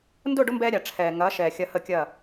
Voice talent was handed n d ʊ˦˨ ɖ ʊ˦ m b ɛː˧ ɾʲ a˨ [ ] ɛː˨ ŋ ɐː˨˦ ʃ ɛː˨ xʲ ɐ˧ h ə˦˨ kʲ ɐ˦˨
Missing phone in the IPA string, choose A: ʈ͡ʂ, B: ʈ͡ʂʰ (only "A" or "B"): B